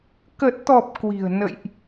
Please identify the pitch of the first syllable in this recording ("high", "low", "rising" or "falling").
low